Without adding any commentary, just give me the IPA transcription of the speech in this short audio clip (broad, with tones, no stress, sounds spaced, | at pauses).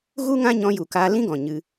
ɣ u˦ ŋ ã˦ ɲ ɔ̃˧ j u˨ k aː˧ l ĩ˦ ɡ ɔ̃˨ ɲ ɨ˧